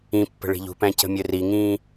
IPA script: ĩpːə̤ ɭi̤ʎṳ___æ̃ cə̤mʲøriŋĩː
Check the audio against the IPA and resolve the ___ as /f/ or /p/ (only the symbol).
p